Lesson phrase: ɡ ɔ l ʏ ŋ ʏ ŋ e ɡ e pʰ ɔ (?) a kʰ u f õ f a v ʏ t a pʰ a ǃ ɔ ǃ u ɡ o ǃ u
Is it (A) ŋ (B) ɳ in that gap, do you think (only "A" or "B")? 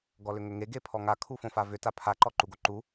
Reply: A